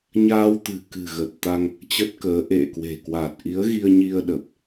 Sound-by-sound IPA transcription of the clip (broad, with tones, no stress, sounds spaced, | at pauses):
ɲ aː˧ w t̪ ɨ̤˨˩ k ɨ̤˨˩ ɣ ə˨˩ t̚ t̪ a˧ ŋ | t͡ɕ ə˦˥ t̚ k əː˨˦ ʔ ḛ˧˨ k w e̤˨˩ k w a˨˩ t̚ ʔ i˨˦ ə̯ ɣ i˧ ə̯ ɲ i˧ ə̯ ɗ ə˨˩ p̚